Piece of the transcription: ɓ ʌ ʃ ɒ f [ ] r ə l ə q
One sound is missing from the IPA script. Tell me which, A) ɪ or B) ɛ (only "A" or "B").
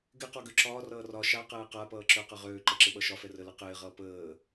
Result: B